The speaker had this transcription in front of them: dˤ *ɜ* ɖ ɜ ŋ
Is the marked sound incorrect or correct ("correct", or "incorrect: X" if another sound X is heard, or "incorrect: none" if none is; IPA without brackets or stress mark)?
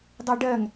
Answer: correct